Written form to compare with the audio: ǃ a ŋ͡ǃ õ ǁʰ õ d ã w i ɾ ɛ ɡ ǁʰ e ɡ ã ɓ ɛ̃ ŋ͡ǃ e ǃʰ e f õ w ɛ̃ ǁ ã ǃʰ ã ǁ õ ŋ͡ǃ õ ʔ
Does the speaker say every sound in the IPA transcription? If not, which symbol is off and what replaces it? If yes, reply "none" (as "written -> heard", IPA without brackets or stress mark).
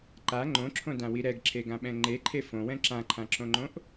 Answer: none